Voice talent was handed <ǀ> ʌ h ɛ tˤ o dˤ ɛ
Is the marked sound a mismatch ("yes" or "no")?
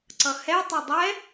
no